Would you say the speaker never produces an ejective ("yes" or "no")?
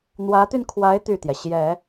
yes